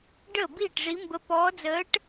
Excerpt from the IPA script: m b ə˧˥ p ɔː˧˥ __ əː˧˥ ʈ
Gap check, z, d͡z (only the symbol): d͡z